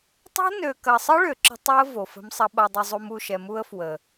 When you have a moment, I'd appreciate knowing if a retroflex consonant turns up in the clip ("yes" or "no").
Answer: yes